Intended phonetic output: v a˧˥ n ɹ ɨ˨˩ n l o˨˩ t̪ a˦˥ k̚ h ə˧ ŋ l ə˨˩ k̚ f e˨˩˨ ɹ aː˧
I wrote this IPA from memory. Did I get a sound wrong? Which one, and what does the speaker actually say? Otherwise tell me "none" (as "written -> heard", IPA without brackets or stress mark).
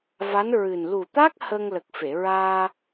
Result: o˨˩ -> u˨˩